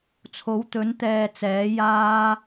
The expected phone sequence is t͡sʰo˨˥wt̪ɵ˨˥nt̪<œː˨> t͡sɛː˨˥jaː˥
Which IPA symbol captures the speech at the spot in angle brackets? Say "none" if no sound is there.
ɛː˨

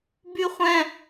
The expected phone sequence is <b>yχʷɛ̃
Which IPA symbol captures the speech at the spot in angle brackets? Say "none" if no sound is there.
b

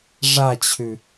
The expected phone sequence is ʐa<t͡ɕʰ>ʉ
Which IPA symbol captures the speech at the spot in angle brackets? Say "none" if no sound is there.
t͡ɕʰ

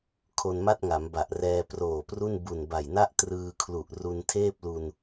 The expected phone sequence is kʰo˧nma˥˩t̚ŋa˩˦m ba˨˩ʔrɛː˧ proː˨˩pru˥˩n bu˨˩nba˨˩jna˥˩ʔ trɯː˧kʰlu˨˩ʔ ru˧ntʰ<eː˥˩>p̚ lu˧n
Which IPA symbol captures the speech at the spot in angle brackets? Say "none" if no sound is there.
eː˥˩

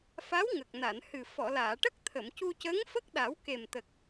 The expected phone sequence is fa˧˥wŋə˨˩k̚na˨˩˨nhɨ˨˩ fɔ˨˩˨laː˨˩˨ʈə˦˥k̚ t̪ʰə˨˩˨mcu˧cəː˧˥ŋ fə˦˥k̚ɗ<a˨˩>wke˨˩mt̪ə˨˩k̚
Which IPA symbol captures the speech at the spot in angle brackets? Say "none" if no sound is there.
a˨˩˦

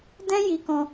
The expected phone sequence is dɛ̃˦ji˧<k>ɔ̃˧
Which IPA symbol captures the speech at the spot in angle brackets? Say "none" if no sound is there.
k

